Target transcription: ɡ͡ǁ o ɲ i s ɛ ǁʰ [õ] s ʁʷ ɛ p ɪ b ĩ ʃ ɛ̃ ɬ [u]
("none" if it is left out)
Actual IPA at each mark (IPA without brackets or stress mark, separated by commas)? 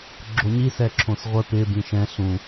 õ, ũ